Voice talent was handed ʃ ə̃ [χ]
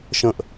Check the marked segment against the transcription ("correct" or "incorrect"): incorrect